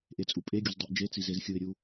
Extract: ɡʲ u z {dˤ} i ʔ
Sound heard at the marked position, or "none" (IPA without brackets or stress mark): dˤ